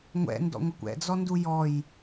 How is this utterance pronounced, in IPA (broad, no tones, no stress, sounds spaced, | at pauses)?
ŋʷ ɛ̰ n d ɔ̰ ŋʷ a kʷ ɛ̰ d͡z ɔ n d u j ɔ j